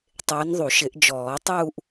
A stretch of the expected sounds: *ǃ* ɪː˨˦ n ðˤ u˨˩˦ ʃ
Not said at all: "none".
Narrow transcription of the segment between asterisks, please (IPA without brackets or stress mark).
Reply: tˤ